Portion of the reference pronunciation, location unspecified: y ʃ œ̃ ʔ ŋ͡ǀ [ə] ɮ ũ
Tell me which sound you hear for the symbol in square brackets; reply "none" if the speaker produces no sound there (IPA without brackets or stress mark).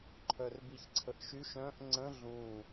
ə̃